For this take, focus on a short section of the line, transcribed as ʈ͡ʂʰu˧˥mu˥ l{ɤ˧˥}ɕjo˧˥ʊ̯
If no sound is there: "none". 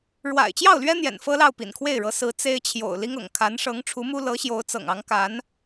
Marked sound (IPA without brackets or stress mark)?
ɤ˧˥